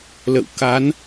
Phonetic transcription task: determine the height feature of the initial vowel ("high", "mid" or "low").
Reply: mid